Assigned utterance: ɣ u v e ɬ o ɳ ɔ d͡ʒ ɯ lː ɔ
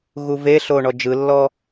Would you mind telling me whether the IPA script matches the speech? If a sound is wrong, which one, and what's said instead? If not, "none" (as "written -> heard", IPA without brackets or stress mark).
none